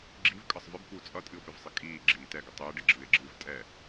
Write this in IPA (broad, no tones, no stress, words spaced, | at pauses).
ɡ͡ǁivkʼʌsˤ vɪbkʷɪo̯ t͡sʼʌtʼɨo̯pɪvsˤɪ kʼiːɡ͡ǁiː tɛɡə tˤɪːɖɪɡ͡ǁɨːe̯ɡ͡ǁɨːv tʼɛ